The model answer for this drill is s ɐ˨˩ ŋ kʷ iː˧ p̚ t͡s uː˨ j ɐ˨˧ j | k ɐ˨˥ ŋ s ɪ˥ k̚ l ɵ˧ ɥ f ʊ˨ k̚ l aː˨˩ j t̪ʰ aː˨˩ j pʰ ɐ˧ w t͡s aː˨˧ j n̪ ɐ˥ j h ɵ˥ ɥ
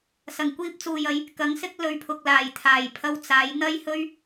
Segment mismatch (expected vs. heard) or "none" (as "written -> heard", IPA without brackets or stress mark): f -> pʰ